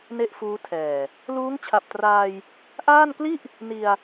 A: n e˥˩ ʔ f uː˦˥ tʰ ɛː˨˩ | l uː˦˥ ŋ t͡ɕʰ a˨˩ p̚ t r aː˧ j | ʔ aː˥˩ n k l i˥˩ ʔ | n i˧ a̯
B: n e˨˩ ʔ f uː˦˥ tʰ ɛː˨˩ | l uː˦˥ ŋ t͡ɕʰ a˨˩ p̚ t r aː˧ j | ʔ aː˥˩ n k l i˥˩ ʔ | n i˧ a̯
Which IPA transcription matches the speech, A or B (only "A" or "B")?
A